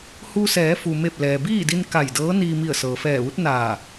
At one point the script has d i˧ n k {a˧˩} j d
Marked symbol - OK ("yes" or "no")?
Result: yes